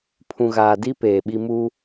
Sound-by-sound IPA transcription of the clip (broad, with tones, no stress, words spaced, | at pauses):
pʰũ˨ɣaː˨ di˦ peː˨ɓi˦ mu˦